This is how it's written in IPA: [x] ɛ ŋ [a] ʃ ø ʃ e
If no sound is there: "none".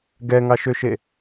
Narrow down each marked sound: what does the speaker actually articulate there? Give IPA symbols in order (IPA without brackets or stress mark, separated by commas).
ɡ, ɑ